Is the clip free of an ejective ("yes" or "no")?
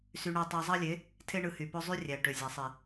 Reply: yes